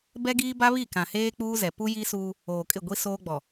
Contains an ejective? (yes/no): yes